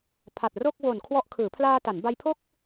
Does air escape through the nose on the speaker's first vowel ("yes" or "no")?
no